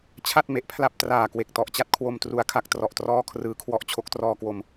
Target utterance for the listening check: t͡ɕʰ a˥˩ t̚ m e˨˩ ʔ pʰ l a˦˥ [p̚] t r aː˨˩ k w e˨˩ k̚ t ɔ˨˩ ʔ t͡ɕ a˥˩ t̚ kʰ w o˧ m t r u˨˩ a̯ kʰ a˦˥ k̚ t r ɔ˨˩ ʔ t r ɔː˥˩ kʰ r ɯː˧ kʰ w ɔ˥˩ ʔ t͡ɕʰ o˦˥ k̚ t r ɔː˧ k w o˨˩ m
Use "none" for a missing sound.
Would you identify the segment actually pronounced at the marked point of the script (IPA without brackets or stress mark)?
p̚